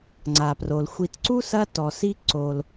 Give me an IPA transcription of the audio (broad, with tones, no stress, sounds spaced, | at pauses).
ŋ͡ǀ a˩ p r o˩ l xʷ i˨ t ǀ u˥ s ɐ˦ t ɔ˩ s i˥ ǀ o˩ l